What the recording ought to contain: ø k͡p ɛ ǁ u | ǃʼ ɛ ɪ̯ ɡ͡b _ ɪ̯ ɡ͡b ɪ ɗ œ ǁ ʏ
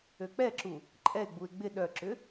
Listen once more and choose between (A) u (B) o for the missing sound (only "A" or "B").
A